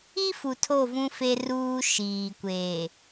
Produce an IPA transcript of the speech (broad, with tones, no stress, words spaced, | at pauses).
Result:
i˦ fu˨tʰo˦˨vũ˦ fe˦ ruː˦ʃiː˨kʷeː˨